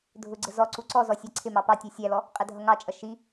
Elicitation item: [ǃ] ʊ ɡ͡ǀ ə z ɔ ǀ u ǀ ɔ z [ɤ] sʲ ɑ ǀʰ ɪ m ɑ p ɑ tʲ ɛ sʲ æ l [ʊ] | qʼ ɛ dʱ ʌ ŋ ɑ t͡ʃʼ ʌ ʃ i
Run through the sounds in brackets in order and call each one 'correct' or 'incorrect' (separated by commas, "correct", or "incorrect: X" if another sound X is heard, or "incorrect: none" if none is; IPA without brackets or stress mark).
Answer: incorrect: dʱ, incorrect: ɔ, incorrect: ɔ